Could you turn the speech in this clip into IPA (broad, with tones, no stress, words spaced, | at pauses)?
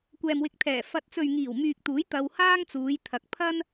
kʷɛː˨mwɪ˧k̚t̪ʰɛː˨˩ fɐ˨t̚t͡sɵ˨ɥ ŋiː˨˩wmyː˨k̚t̪uː˨˥j t̪ɐ˧whaː˥ŋt͡suː˨˧j t̪ʰɐ˨˥k̚ pʰɐ˥n